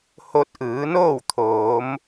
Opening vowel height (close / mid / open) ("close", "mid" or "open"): mid